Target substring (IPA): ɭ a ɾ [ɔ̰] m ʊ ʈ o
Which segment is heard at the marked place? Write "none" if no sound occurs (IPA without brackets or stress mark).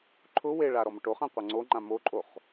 ɔ